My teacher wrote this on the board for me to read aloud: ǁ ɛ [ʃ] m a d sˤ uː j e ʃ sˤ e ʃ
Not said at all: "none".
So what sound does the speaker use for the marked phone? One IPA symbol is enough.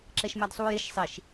ʃ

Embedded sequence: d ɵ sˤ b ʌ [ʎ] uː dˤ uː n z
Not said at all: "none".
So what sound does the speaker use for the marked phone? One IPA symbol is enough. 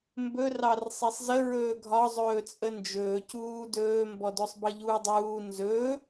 ʎ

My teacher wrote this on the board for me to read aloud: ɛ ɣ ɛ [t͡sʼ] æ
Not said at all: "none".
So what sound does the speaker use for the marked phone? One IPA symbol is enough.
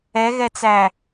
t͡s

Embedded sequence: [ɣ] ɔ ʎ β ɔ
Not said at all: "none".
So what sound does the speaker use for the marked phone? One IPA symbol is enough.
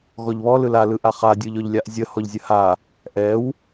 ɣ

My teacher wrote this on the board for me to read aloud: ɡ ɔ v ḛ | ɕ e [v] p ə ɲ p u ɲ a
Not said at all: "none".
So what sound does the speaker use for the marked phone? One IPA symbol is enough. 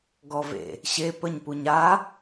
none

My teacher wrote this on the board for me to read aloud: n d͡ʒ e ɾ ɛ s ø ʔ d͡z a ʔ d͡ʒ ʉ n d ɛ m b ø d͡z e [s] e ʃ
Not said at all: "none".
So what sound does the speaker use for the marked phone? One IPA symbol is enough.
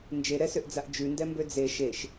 ʃ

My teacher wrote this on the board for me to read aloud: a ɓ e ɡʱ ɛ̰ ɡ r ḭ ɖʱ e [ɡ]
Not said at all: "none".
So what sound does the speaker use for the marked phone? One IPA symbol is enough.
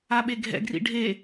none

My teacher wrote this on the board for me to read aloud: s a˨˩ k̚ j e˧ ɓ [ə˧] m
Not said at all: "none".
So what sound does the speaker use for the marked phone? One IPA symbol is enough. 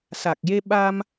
a˧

